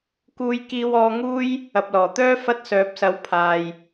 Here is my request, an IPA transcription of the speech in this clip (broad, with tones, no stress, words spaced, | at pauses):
kuː˧jkiː˧w ɔː˧ŋuː˥j | ɐ˨p̚lɔː˨˩t̪œː˥ fɐ˧t̚sœː˨˥p̚sɐ˨˧w pʰaː˨j